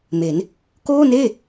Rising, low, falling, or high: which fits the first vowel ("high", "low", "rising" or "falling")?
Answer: rising